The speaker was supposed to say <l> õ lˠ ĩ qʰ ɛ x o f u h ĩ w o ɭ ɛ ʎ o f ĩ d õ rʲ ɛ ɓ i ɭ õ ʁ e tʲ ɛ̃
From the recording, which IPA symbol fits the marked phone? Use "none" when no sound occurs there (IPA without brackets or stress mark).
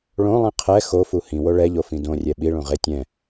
ɭ